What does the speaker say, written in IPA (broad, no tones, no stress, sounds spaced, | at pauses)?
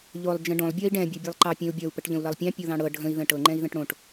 ʎ o lˠ d͡ʒ ə̃ ɖ õ lˠ bʲ ɒ i̯ ɖ ɛ̃ bʲ o bʲ ɛ lˠ ǃ ɑ pʲ ɛ̃ u̯ bʲ ɒ u̯ p ə ʈ ʎ ə̃ u̯ l ʌ lˠ pʲ ɑ̃ pʲ o ð ɑ̃ ɽ ɤ ɖʱ ə̃ i̯ ð ə̃ ʈ ɤ ŋ͡ǃ ɛ̃ i̯ ð ə̃ ʈ ɽ õ ʈ